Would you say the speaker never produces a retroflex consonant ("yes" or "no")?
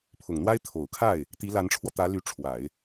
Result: no